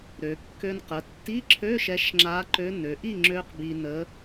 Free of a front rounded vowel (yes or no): no